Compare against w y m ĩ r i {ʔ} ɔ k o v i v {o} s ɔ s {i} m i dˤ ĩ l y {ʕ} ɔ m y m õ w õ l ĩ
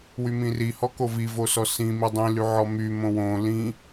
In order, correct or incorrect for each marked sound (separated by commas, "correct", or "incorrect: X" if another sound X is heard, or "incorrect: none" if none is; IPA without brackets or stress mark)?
incorrect: h, correct, incorrect: ĩ, correct